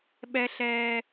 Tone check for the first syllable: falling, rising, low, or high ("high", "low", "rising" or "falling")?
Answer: high